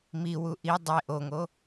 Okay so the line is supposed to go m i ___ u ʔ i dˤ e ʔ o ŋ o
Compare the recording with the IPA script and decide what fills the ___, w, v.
w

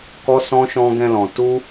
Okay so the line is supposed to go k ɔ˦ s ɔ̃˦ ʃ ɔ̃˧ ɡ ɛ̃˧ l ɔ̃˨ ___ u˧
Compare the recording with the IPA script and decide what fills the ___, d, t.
t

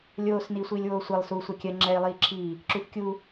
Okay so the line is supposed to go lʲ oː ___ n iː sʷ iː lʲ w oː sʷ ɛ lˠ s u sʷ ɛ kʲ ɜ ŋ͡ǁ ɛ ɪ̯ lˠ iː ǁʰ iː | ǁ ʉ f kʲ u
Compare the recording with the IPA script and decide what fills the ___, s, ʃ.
s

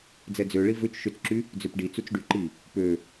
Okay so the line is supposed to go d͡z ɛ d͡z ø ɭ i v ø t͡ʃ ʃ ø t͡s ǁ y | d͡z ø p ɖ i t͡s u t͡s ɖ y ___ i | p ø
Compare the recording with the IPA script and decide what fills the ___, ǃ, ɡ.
ǃ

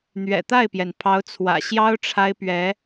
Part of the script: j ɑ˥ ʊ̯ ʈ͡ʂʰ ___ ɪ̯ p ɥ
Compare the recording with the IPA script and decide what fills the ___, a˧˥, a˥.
a˥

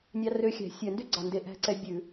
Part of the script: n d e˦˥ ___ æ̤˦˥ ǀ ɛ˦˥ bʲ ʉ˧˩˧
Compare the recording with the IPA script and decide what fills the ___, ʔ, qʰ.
ʔ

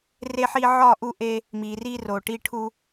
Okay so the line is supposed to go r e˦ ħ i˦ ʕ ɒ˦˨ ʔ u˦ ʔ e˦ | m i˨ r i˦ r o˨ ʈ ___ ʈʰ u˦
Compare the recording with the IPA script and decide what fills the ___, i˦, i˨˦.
i˦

